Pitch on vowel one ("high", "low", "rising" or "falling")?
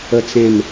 falling